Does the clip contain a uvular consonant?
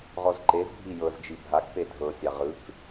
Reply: yes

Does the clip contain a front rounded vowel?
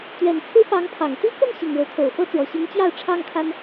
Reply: no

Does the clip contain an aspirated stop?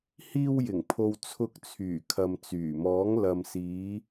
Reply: yes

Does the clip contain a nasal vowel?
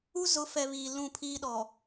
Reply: yes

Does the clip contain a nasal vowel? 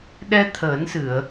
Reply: no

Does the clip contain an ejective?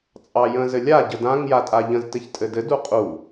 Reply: yes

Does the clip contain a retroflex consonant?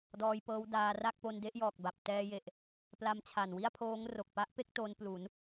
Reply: no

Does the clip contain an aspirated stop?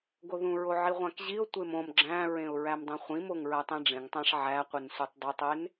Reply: no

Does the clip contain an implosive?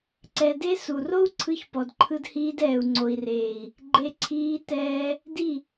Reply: no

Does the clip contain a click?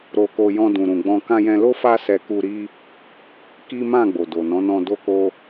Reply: no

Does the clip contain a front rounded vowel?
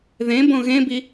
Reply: no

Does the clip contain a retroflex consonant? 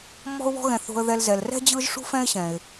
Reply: yes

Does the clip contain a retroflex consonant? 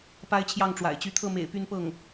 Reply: yes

